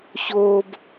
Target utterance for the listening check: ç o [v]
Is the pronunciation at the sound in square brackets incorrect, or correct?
incorrect: b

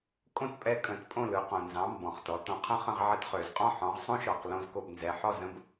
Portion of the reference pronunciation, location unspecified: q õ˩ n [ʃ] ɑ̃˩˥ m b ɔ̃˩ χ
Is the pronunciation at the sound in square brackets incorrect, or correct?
incorrect: z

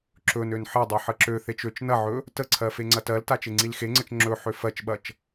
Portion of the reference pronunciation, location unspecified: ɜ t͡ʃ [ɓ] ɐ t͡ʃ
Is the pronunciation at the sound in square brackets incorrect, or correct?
correct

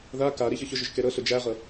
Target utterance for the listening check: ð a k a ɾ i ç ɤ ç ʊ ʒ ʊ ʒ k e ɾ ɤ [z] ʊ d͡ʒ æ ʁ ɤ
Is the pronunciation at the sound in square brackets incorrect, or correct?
incorrect: ɬ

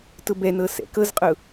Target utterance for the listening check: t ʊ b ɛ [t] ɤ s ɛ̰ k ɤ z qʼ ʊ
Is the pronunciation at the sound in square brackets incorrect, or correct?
incorrect: n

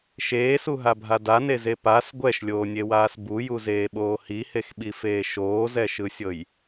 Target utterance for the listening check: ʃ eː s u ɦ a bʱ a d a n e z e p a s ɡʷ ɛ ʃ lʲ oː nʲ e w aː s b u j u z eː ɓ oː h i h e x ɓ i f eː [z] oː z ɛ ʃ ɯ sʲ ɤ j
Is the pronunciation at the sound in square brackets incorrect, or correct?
incorrect: ʃ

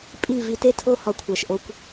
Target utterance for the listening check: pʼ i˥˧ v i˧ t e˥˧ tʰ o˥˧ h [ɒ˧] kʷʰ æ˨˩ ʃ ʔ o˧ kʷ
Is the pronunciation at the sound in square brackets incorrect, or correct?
correct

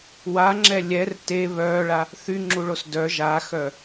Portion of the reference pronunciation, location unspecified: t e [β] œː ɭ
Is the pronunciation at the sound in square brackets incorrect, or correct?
correct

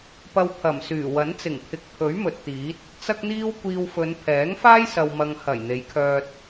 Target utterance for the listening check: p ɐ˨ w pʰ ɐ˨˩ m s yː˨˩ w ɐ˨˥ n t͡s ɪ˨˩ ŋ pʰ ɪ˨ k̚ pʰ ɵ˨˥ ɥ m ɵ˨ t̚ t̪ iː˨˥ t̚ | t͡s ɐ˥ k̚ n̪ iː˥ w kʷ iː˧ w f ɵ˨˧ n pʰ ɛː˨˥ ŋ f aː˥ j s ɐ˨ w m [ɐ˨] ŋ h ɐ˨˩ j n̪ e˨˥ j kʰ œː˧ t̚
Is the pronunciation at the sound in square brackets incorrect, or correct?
correct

